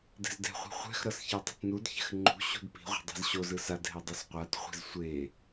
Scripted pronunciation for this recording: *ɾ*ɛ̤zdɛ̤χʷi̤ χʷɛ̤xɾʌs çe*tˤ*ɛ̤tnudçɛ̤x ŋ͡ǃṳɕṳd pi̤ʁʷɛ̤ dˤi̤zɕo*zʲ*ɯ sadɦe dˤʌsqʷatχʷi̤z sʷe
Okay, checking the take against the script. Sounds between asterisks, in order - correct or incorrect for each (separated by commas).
incorrect, correct, incorrect